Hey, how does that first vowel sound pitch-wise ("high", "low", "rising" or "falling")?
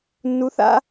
rising